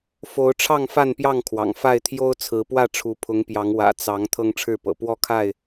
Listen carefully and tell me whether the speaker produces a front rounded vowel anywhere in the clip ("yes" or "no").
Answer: no